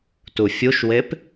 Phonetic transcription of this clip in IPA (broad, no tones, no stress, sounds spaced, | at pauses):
t u fʲ u ʃ w e p